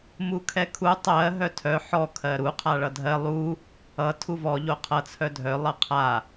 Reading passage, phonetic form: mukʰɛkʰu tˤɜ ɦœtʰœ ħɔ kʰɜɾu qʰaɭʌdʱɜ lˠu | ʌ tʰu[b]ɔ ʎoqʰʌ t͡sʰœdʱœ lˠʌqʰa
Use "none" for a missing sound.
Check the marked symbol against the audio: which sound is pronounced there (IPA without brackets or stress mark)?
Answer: v